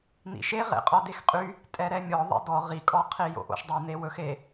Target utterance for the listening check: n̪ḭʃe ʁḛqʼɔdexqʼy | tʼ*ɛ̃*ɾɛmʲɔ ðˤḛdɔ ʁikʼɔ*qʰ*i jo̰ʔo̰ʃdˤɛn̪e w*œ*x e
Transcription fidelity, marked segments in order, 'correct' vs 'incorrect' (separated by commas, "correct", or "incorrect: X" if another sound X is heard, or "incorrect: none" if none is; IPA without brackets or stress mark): incorrect: ɛ, correct, incorrect: ɵ